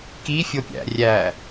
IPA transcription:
kifʲopʲæ̰ rʲæ

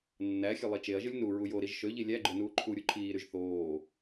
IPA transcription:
nːæxʲø lˠit͡ʃeɐ̯ʒɯlʲ nu ɹujoɾiʒ ʃøʎi lʲæɡ͡ǃø nuːǃʰuɾʲu ǃʰiːɾyʒ θoː

